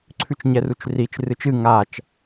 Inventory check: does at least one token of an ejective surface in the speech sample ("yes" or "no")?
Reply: no